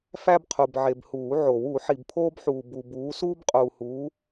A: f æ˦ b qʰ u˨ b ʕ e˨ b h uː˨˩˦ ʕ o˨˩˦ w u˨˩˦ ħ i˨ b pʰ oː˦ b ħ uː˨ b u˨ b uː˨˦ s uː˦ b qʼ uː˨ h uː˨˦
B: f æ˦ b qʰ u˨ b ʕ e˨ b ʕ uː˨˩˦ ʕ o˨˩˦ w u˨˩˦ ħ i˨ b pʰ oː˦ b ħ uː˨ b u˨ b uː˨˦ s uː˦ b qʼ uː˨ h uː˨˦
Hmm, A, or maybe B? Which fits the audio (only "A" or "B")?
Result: A